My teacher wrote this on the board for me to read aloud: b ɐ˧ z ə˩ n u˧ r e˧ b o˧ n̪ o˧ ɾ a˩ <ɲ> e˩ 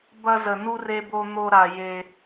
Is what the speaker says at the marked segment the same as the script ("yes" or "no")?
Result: no